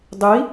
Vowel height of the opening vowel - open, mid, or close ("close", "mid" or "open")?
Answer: close